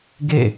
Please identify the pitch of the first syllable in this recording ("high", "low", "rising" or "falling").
falling